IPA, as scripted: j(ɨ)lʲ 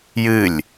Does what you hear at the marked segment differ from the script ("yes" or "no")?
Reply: no